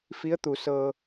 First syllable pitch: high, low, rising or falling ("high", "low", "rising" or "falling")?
rising